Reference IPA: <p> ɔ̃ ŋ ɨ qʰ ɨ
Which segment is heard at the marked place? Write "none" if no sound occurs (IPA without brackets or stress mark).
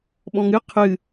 ɓ